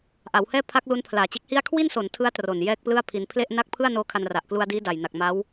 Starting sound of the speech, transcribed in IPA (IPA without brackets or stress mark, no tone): ʔ